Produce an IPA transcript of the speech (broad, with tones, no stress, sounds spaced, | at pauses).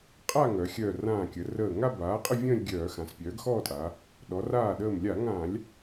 qʼ a˥˧ ŋ œ˩˧ xʲ œ˧˩ r ãː˧˩ kʲ ə˩˧ r əː˧˩ ŋ a˥˧ b aː˩˥ qʼ ə˥˧ vʲ ə̃ː˥˧ lʲ ɡʲ œː˧˩˧ x ã˩˧ s pʲ œː˩˥ ɡ x ɔː˥˧ tʼ a˩˧ | ɗ ɔ˩˧ r aː˧˩ ɗ əː˧˩ m lʲ a˧˩˧ ŋ ã˧˩˧ lʲ